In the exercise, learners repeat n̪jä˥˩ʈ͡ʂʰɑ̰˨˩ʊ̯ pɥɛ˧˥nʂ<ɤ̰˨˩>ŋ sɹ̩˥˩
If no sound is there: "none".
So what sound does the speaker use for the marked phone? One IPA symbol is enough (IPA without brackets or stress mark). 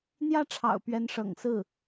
ɤ̰˨˩